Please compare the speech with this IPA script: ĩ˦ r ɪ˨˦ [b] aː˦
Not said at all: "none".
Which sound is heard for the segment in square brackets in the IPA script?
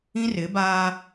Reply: b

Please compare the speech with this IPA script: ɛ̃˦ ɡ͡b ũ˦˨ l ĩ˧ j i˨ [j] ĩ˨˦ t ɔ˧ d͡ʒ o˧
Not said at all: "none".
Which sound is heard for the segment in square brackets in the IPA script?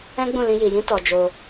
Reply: j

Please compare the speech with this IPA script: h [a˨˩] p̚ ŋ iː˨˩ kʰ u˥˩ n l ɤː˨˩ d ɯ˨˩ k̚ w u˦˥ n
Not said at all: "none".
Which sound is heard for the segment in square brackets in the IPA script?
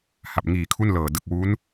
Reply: a˨˩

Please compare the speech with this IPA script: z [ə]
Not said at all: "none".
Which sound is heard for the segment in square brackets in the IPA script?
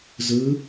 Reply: ɯ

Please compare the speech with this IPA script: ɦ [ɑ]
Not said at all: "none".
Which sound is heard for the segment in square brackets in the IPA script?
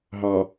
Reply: ɑ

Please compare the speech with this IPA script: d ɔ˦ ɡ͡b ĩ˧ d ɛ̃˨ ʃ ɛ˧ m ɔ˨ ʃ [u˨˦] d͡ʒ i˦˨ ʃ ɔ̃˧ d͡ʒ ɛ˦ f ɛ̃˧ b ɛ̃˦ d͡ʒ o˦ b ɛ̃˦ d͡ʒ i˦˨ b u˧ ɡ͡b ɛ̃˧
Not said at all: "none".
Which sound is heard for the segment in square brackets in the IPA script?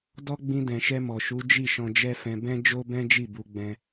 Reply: u˨˦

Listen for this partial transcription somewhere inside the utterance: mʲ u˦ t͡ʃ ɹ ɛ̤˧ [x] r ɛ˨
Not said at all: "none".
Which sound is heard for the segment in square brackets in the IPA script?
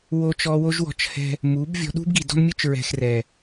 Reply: x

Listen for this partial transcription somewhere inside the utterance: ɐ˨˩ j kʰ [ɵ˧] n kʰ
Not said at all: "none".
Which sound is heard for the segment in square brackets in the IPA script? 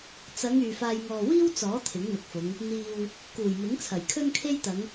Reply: ɵ˥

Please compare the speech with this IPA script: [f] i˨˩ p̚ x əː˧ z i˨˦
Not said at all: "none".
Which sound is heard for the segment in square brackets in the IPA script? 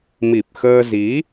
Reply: m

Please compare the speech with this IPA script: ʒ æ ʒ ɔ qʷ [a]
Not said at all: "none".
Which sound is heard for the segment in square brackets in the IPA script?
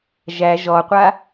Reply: a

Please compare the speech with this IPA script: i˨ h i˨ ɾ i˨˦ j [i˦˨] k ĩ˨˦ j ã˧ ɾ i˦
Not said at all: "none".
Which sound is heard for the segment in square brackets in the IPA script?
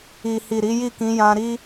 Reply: i˦˨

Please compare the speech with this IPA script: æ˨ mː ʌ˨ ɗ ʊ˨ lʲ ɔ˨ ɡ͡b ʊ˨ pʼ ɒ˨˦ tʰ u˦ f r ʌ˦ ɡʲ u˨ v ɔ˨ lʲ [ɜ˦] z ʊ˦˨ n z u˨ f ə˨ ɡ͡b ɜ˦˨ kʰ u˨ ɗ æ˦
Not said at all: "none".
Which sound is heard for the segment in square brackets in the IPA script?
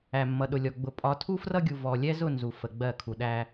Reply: ɛ˦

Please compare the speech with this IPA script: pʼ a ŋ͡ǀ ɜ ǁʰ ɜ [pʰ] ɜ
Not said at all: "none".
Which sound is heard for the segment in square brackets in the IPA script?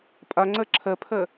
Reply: pʰ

